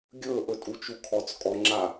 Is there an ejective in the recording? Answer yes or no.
yes